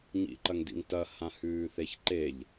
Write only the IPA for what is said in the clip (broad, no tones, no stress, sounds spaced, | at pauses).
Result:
ɲ ḭ ǃ ɐ ŋ d ḭ ŋ t ɐ h ã h ʉː θ e ç ǃ e ʎ